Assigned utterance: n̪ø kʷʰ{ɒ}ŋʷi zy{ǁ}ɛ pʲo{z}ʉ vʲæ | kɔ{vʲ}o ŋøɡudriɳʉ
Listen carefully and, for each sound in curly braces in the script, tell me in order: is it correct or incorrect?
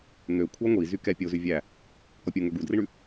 incorrect, incorrect, correct, incorrect

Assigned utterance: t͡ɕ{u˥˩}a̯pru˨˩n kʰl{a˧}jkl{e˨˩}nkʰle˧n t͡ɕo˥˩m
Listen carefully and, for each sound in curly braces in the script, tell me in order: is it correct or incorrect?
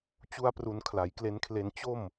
incorrect, incorrect, incorrect

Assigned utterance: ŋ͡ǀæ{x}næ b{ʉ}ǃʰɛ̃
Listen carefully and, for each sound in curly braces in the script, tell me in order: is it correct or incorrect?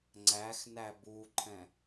correct, incorrect

